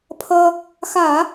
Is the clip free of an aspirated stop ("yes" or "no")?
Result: no